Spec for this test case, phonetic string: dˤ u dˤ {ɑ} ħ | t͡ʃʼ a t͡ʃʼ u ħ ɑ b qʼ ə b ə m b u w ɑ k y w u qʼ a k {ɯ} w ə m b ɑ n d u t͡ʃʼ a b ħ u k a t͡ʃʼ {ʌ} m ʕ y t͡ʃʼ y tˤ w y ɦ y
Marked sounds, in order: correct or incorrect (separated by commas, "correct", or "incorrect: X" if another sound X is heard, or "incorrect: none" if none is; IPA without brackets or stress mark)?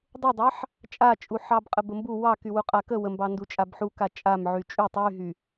correct, incorrect: ə, incorrect: a